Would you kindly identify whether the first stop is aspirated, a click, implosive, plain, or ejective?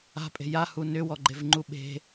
ejective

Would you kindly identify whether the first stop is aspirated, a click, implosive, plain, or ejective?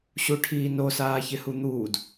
aspirated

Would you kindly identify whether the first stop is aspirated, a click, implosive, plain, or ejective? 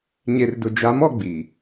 plain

